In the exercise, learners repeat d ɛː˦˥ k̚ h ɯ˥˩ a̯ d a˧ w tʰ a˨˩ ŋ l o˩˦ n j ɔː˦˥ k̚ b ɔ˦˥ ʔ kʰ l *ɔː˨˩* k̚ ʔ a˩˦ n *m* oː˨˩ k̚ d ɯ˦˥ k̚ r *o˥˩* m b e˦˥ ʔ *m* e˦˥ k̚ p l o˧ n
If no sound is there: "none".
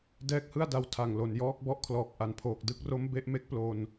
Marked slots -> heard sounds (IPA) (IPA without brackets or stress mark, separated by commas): ɔː˨˩, pʰ, o˦˥, m